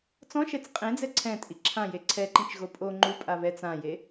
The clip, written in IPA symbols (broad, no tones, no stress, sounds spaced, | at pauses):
t͡s ɔ̃ ʃ ɛ t͡s qʼ ẽ d͡z ɛ ǀʰ ɛ̃ tʼ i ǁʰ ã j e ǀʰ ɛ ǃ ĩ t͡ʃ ɣ o pʼ o ŋ͡ǃ u pʼ a β ɛ t͡s ã j e